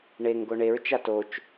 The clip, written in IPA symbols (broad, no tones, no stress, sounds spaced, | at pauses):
ɳ e ŋ ɡ o ɳ e ɹ t͡ʃ a t o t͡ʃ